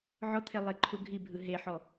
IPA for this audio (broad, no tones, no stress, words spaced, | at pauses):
ʕɔt̪ʰe lˠeǃʰuɡʱibʱɯ ɦeħɔ